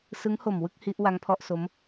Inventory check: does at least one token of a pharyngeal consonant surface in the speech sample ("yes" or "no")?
no